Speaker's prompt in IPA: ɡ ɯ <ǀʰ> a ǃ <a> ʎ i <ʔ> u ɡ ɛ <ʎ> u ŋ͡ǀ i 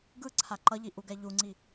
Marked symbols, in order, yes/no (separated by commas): yes, no, yes, yes